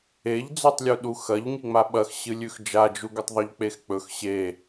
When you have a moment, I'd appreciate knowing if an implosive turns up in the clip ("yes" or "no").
yes